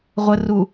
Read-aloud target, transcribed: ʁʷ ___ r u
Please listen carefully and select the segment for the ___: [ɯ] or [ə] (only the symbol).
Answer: ə